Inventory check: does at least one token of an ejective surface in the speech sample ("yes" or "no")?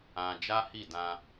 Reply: no